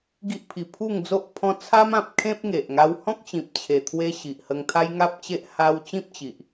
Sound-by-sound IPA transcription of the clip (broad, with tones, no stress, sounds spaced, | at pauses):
ɡ i˦ ʔ pʰ i˨˩ pʰ u˥˧ ŋ d͡z o˦ ʔ pʰ ɔ̃˦ t͡sʰ a˦ m ã˨ p̚ kʰ ẽ˦ p̚ ŋ e˨ ʔ ŋ a˦ w h ɔ̃˦ k̚ t͡ɕ ĩ˨ p̚ t͡ɕʰ e˨˩ t̪ʰ w e˦ ɕ i˨ ʔ h ə˧ ŋ t̪ʰ a˦ j ŋ a˦ p̚ t͡ɕ e˦ ʔ h a˦ w t͡ɕ ĩ˦ p̚ t͡ɕ i˨ ʔ